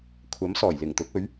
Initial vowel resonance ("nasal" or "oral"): oral